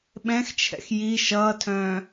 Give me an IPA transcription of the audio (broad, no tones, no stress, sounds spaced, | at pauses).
ɓ ɛ̃ x t͡ʃʰ ɛ̰ x j i ʃ ʌː tʰ œ̃ː